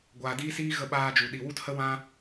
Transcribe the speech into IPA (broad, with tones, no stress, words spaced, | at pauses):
ɡʷaː˨diː˦siː˦ ɣə˧ɓaː˧d͡ʒu˨ ɗi˨wu˦thə˦ wã˦